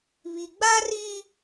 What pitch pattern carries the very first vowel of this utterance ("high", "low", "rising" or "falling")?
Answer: low